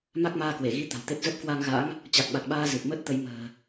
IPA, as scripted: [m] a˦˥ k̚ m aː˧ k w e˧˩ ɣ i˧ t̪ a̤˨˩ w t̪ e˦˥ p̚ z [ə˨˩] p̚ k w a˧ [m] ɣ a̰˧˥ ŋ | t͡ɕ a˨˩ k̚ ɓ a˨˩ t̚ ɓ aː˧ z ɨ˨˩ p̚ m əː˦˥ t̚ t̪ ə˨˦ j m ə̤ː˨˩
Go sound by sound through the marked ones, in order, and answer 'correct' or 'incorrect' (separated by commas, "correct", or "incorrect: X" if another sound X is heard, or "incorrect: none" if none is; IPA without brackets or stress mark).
correct, incorrect: ə˦˥, incorrect: ŋ